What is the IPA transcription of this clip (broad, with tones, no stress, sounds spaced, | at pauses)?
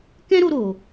k ɛ̃˦ ɾ o˧ ɾ o˨